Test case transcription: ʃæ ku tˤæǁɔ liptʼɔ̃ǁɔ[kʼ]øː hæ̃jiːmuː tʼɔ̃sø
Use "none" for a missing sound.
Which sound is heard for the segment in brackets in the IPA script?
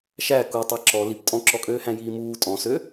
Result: kʼ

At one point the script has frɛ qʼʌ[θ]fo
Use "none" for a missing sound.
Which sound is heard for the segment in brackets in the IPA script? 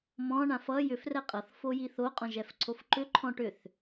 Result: θ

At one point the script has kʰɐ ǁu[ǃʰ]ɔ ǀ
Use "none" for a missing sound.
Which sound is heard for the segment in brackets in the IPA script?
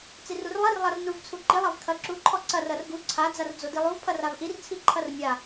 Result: ǃʰ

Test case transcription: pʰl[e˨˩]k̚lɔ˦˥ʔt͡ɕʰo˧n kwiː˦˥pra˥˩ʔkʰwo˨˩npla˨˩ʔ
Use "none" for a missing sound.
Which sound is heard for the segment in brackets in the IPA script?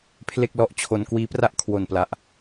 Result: e˥˩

